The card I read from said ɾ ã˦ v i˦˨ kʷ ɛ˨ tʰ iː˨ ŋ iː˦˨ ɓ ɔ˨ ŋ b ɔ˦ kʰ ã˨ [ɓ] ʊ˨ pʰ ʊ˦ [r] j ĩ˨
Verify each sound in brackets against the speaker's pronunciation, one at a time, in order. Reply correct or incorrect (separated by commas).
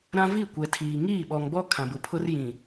incorrect, correct